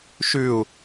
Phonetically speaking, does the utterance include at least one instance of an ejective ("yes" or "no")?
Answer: no